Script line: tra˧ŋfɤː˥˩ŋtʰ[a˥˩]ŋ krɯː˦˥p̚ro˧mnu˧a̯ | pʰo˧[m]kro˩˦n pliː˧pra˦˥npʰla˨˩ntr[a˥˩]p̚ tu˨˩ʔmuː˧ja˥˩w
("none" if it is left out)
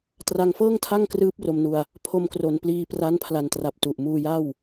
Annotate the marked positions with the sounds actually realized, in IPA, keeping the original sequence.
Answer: a˥˩, m, a˨˩

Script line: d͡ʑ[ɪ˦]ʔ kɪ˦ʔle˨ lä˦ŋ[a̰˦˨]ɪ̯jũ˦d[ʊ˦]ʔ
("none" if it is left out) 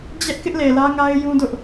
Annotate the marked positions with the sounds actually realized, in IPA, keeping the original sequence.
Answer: ɛ˦, a˦, ʊ˦

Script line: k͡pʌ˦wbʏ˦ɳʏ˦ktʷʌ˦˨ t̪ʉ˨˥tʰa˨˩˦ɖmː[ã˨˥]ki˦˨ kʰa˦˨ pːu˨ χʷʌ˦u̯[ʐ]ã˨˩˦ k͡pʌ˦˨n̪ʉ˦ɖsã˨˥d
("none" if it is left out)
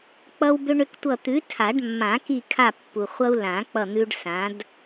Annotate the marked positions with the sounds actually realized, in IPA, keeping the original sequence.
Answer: ã˨˩˦, l

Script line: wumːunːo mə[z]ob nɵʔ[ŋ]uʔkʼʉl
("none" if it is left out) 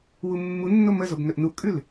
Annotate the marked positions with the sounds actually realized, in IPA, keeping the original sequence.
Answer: z, n

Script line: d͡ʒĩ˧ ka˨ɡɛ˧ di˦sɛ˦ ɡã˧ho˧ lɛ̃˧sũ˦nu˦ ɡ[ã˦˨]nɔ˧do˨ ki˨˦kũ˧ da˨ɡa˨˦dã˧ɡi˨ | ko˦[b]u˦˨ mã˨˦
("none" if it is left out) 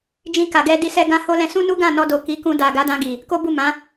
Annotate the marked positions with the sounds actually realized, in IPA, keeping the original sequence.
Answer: ã˦˨, b

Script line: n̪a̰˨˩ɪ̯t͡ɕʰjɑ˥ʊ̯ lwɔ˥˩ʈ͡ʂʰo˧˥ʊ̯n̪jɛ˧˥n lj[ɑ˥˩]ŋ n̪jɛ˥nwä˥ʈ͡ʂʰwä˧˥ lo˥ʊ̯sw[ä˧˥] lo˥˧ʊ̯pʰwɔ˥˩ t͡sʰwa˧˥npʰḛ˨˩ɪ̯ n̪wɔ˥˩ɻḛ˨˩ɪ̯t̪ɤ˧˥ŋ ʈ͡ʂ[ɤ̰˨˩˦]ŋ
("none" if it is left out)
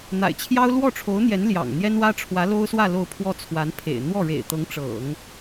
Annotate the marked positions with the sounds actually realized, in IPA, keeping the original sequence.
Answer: ɑ̰˨˩, ä˥˧, ɤ̰˨˩˦

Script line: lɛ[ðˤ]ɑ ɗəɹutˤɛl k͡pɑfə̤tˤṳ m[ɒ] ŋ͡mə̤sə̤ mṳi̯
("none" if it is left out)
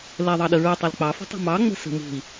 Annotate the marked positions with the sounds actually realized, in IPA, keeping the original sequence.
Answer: ðˤ, ɑ

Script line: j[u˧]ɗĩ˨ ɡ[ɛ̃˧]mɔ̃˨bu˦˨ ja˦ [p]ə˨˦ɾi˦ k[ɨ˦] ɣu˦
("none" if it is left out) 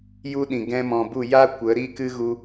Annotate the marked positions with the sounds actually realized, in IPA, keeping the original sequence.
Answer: u˦, ɛ̃˧, kʷ, ɨ˦

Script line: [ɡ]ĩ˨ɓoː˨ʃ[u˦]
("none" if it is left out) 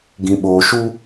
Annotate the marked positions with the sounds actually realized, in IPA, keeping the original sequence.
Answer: ɡ, u˦

